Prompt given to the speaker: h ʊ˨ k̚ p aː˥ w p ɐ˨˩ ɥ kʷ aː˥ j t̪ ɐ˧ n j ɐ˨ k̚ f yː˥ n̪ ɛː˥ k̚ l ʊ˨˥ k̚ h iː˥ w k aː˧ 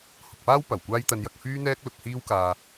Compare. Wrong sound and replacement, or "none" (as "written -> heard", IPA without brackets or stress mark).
ɥ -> w